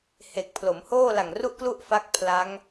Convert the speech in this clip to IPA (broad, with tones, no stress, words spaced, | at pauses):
he˨˩k̚ pʰlo˩˦mhoː˥˩la˨˩ŋ ru˥˩ʔklu˥˩ʔfa˦˥k̚ pʰla˦˥ŋ